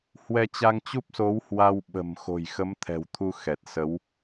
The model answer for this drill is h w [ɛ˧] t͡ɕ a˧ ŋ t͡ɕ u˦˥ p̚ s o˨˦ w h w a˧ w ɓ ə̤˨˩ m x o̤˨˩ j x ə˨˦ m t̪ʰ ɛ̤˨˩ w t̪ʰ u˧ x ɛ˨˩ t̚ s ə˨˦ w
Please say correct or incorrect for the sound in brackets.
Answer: correct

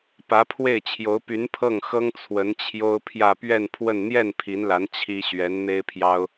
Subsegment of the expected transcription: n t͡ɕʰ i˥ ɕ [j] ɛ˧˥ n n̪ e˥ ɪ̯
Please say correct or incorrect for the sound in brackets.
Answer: incorrect: ɥ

